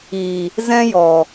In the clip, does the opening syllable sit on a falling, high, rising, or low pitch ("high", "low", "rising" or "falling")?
low